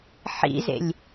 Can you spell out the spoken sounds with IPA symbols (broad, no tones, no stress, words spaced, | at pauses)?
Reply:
ħḭzḛlʲ